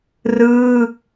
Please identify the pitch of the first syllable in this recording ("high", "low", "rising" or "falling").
falling